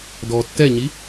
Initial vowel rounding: rounded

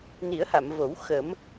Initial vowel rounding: unrounded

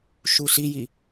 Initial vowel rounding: rounded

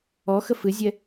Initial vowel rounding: rounded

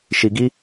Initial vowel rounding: unrounded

